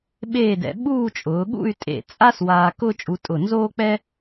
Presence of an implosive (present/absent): present